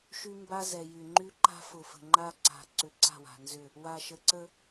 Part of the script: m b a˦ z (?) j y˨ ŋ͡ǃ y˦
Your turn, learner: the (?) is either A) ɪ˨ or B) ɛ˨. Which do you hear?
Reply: B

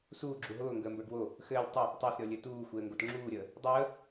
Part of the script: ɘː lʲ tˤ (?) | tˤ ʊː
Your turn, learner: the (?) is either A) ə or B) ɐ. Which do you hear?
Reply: A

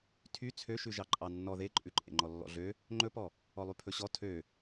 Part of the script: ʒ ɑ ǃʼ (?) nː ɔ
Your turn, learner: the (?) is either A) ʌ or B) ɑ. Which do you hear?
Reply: B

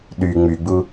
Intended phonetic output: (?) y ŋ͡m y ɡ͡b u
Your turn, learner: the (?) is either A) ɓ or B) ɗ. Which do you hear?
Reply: B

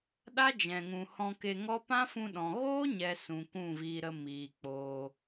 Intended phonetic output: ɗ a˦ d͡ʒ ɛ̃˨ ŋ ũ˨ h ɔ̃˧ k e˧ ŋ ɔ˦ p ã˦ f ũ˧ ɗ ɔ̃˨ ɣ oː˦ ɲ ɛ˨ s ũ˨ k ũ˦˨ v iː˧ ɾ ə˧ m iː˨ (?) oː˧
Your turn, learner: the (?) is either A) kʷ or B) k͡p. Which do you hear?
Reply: B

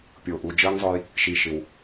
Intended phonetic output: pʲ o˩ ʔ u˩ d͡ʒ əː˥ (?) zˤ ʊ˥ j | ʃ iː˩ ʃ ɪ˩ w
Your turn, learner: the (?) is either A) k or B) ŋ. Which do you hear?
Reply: B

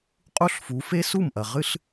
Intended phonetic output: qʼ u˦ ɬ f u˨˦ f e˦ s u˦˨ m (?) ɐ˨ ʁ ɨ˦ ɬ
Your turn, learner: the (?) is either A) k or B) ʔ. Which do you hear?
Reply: B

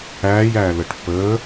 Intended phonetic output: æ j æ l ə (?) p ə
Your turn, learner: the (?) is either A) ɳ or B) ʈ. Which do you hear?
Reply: B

